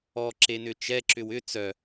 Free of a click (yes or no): no